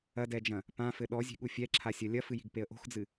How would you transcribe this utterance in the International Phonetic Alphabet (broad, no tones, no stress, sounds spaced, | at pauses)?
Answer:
ɐ d ɛ d͡ʒ ɐ̃ | p ã f ɘ ɗ ɔ zʲ e̤ ɠ u fʲ ɛ ǁʰ a sʲ ɐ lʲ ɐ f ɨ j i̤ ɡ p e ə̯ ʔ o̤ x d͡z ɨ